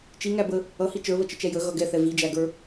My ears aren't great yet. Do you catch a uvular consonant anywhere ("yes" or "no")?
no